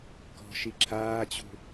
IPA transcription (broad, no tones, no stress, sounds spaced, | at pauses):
k ɔ̤ ʃ i ǁʰ aː t͡ɕ ṳ